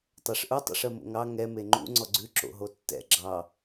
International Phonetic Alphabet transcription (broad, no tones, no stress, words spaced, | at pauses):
tˤɛʂʔu tˤṵʂɜmo̰ŋɑ ŋɛ meŋ͡ǃṵ ŋ͡ǀɔɡ͡ǀʉ ǁo̰ɦotːɛ̰ ɡ͡ǁɑ